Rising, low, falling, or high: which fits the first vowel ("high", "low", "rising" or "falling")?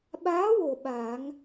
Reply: rising